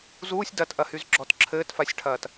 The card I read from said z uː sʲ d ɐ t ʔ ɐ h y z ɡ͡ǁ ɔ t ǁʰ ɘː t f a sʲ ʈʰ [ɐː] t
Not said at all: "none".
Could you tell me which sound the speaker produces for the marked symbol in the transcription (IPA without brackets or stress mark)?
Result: ɐː